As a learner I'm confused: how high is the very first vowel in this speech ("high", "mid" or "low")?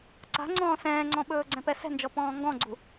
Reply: low